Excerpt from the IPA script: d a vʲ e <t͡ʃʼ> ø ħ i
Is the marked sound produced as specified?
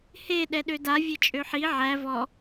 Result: yes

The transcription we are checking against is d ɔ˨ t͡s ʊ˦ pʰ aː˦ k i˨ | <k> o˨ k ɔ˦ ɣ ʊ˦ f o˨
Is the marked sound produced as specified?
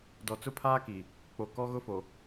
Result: no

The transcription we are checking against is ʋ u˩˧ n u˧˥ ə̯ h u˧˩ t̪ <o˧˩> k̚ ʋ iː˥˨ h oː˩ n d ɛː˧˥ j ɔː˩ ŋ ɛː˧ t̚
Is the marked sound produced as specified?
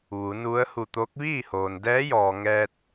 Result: no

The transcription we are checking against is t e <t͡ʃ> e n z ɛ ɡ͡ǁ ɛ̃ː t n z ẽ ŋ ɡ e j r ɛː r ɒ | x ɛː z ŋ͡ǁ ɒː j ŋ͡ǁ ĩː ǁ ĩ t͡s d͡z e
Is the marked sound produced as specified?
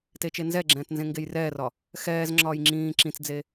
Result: yes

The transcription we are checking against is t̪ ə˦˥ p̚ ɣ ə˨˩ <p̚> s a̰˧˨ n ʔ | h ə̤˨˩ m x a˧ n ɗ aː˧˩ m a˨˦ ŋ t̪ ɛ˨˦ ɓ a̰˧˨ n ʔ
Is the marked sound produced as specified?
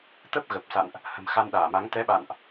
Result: yes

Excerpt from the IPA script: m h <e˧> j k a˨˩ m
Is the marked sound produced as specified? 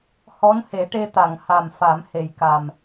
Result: no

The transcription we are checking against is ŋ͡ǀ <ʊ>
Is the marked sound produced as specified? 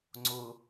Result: yes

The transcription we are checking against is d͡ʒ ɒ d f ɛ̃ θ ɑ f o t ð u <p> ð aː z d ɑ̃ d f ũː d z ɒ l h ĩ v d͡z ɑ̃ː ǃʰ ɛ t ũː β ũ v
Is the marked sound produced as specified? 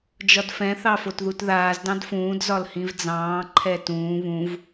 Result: no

